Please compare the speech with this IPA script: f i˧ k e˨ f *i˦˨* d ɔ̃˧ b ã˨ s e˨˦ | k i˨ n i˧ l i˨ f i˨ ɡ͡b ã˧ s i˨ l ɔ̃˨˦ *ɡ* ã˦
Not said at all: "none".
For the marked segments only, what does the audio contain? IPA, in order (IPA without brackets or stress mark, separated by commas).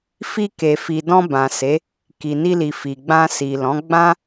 i˨, ɡ͡b